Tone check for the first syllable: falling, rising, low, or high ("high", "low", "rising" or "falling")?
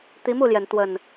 rising